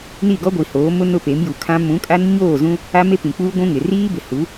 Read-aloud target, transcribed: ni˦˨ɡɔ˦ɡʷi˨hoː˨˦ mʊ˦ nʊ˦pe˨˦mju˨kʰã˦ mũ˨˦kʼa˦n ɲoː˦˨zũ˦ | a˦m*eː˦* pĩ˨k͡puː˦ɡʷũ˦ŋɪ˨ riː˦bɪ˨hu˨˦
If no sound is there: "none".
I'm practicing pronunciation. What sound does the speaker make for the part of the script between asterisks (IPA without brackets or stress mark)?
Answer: e˦